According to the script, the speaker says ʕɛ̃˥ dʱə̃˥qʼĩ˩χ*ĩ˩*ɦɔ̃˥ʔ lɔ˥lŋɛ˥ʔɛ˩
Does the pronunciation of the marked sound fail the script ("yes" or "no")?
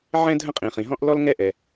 no